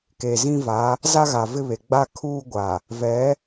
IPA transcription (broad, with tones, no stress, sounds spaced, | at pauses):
k e˨ z ĩ˦ v a˨˦ | z a˦ ɣ a˨ v ɪ˦ β e˨ ɡ͡b a˦˨ kʰ uː˦ ɡʷ a˨ | v ɛ˨˦